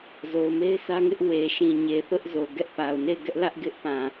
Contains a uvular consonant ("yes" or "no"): no